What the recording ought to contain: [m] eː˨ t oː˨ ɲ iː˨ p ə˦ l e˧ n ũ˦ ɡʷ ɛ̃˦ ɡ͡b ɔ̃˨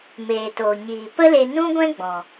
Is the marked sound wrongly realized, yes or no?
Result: no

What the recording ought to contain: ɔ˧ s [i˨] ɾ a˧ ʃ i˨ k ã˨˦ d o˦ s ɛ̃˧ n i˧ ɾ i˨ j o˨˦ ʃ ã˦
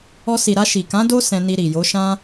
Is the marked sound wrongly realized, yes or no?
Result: no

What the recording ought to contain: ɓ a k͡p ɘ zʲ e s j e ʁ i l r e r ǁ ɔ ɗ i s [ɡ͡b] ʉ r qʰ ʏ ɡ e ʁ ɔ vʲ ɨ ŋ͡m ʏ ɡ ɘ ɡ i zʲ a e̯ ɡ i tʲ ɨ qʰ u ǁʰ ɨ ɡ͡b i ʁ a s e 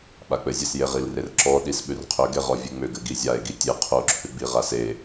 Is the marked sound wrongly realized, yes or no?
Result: yes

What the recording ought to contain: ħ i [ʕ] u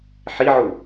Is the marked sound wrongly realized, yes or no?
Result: no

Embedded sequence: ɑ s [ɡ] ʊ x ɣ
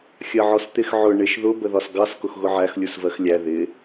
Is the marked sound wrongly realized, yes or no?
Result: yes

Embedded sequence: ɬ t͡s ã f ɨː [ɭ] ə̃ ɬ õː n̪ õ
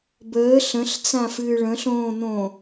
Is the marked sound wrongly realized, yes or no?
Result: no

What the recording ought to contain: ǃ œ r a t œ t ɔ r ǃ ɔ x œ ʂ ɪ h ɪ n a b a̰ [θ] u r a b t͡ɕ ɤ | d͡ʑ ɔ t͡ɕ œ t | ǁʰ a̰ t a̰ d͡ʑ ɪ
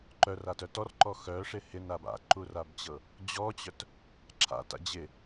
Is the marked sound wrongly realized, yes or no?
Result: yes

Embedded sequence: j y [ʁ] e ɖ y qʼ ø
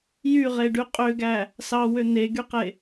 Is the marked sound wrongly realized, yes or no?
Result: no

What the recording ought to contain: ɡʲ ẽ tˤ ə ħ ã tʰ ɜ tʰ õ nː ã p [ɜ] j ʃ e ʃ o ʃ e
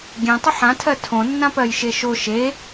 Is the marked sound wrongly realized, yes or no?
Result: no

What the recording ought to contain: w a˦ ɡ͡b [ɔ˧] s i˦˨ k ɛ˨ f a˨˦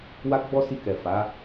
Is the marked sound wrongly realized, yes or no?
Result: yes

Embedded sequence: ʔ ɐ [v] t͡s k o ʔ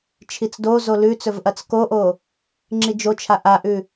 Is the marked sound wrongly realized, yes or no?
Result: yes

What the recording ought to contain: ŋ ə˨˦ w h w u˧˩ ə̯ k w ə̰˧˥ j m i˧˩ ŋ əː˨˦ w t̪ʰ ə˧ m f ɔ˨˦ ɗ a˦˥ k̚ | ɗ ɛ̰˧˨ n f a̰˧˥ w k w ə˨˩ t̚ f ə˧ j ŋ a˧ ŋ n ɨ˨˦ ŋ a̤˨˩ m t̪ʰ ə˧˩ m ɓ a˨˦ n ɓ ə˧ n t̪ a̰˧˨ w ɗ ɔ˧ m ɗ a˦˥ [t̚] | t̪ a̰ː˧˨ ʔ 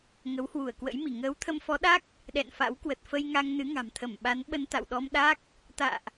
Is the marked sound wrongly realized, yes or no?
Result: yes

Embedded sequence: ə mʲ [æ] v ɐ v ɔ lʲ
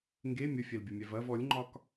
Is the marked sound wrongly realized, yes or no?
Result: no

